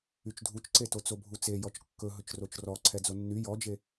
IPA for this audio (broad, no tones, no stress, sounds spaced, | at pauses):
y t͡ʃ dʱ u t͡ʃ ǀ e t o t͡s o bʱ u t͡s e j ɔ t͡ʃ kː ɵ ɦ ɵ t͡ʃ r o t͡ʃ r ɔ ǀʰ ɛ d͡z o nː y j ɔ d͡ʒ e